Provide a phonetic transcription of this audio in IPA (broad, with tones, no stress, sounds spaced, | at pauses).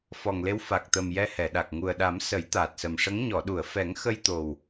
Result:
f ɔ˨˩ ŋ l e˧˥ w f a˨˩ k̚ t̪ ə˨˩ m j ɛ˧ h ɛ˨˩˨ ɗ a˨˩ k̚ ŋ u˨˩ ə̯ ɗ a˨˩˦ m s ə˨˩˦ j t̪ aː˨˩ t̚ s ə˨˩ m ʂ ə˧˥ ŋ ɲ ɔ˨˩˨ ɗ u˨˩˨ ə̯ f ɛ˨˩˦ ŋ x ə˧ j t̪ o˨˩ w